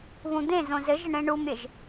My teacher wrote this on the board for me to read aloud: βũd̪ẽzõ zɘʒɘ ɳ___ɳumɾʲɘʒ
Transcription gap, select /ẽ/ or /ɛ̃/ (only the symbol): ẽ